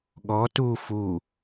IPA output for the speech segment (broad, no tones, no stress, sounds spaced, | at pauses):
ɠ ɔ t u f u